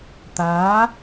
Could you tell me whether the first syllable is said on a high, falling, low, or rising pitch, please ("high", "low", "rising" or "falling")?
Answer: rising